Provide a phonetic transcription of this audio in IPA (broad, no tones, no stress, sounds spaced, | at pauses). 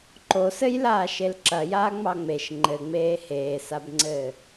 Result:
ǃ o s ɘ j l aː ʃ e l ǁ ɐ j aː ŋ͡m ɑ ŋ͡m e ʃ ŋ͡ǃ ɘ ŋ͡m eː h eː s a b ŋ͡ǀ ɘː